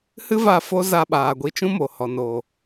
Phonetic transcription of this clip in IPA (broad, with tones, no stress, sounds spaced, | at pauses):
h ɨ˦ v a˧ f o˦ z a˧ ɓ aː˨ ɡʷ i˧ t͡ʃ ũ˦ m o˨ h ɔ˨ n oː˨